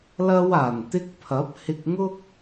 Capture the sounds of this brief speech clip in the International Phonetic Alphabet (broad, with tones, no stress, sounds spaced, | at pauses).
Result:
l ɐ˧ w aː˨˩ n t̪ ɪ˧ k̚ pʰ ɐ˨˥ p̚ h ɪ˧ k̚ ŋ ʊ˥ k̚